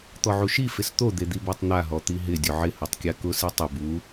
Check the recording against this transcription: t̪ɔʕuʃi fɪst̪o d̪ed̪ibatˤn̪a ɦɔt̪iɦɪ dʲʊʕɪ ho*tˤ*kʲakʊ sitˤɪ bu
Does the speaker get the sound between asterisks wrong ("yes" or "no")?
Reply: no